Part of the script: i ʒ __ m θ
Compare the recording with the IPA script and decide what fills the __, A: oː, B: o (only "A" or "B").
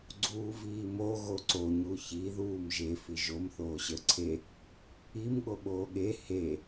B